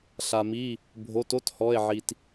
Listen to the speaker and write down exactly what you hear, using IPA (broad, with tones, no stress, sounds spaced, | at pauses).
ɬ a˩ m i˩˧˩ | bʱ o˩˧˩ t o˧˥˧ t h ɔ˩˧˩ e̯ ʕ i˩ t